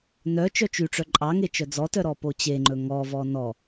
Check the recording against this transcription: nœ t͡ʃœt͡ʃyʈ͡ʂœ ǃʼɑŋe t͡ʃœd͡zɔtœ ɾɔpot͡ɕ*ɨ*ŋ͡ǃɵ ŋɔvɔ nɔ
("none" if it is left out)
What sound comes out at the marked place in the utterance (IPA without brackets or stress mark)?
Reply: e